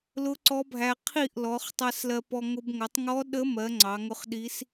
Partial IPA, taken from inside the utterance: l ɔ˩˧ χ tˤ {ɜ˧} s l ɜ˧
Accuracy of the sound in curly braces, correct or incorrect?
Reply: correct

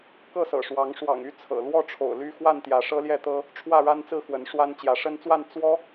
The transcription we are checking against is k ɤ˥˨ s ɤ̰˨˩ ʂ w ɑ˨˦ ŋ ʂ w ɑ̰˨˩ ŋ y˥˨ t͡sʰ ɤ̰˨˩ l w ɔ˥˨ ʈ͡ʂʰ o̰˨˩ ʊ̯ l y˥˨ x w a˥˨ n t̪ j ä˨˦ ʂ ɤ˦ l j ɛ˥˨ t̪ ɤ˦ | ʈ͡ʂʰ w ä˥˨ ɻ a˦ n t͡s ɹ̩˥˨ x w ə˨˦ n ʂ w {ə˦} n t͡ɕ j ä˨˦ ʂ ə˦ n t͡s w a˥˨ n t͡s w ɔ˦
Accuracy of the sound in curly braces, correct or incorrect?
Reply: incorrect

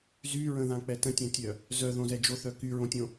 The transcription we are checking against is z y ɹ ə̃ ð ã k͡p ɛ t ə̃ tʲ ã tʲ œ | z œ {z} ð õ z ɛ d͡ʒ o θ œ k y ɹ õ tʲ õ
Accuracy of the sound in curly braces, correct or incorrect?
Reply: incorrect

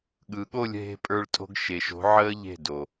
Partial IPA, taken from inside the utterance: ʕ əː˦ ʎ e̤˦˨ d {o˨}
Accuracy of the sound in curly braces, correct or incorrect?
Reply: correct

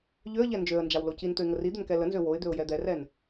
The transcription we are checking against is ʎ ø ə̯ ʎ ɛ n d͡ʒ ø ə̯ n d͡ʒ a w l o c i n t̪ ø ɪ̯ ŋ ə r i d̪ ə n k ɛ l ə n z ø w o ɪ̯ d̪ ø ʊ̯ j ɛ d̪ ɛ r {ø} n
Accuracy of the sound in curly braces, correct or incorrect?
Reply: incorrect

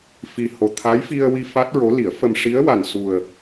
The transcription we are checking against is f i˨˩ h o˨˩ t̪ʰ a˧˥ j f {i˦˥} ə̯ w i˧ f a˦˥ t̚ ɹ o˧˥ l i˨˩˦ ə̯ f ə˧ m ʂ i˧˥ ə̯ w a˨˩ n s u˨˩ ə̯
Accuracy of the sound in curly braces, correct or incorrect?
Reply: incorrect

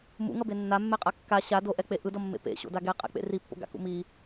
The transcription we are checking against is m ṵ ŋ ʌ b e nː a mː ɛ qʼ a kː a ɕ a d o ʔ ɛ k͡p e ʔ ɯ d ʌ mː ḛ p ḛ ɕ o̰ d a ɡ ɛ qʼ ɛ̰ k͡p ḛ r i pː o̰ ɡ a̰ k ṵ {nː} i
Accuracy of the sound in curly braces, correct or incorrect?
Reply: incorrect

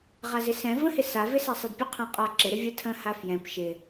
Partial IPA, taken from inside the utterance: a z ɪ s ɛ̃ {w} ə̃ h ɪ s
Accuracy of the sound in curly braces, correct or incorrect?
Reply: incorrect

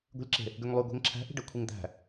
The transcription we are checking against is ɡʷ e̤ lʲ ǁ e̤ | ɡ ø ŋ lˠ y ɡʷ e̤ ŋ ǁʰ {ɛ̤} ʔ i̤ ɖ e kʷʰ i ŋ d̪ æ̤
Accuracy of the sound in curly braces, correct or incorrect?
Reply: incorrect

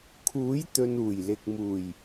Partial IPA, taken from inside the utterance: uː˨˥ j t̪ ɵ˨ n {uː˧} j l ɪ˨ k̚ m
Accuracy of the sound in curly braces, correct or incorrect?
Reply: incorrect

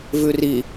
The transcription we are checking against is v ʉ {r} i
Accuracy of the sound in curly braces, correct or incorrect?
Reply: correct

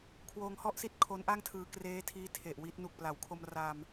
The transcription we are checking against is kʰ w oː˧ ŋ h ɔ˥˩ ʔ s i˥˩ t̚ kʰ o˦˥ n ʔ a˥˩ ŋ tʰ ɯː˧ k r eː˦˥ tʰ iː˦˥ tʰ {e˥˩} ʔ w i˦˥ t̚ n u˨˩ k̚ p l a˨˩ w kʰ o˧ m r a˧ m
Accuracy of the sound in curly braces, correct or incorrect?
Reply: incorrect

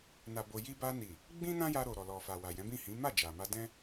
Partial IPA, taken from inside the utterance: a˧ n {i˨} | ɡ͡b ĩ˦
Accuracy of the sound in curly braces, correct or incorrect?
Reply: correct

